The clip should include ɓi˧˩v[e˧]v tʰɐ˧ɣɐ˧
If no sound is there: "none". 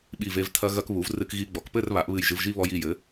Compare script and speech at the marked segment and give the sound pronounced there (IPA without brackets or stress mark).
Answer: e˧